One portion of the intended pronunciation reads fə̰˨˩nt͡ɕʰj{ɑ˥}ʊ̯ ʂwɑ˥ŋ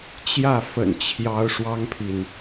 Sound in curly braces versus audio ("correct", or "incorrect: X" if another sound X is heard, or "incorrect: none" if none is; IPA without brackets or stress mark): incorrect: ɑ˧˥